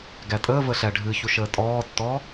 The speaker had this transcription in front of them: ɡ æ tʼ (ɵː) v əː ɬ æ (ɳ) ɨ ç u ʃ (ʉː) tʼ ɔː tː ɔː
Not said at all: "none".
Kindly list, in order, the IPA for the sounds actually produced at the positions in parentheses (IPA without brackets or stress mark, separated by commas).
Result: əː, ɖʱ, əː